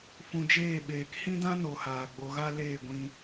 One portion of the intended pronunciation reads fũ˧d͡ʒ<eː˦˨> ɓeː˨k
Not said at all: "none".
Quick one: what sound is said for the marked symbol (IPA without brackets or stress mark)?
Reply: eː˦˨